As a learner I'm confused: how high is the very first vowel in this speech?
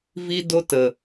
high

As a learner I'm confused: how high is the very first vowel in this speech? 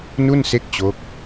high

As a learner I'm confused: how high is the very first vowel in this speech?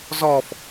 mid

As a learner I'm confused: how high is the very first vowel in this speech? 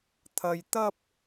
low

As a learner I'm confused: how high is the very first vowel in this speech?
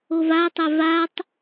mid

